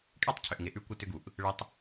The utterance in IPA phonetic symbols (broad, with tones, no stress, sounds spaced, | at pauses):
kʼ e˦ tˤ cʰ ʏ˨ ʔ ŋ ɪ˨ ʔ ʉ˦ kʷ ɪ˦ t ʏ˦ ɡ u˨ ʔ | ɭ ɪ˦ tˤ